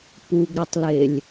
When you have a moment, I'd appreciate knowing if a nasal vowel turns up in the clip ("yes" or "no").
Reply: no